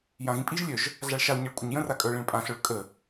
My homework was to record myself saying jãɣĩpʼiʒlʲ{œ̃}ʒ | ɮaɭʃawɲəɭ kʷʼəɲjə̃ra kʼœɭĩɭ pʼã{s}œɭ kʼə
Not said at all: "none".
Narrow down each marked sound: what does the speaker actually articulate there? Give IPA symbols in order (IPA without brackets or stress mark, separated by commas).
œ, ɬ